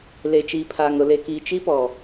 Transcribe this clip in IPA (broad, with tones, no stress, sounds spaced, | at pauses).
l e˨ t͡ʃ iː˨ pʰ aː˨ ŋ ɾ ʊ˨ l e˨ k iː˨ t͡ʃ i˦ p ɔ˨